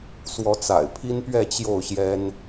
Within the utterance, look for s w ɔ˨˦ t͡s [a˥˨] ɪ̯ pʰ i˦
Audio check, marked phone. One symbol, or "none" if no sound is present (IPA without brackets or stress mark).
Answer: a̰˨˩